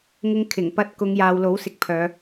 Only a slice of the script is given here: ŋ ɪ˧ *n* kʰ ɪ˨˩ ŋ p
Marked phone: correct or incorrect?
incorrect